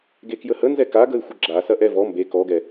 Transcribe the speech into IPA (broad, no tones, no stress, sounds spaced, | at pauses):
ɡ e k j ə h ə n z ɛ k a ɡ ə ɪ̯ xʷ ə ɡ͡ǁ a s ɐ ʔ ɛ v ɔ m b e k ɔ ɡ ɛ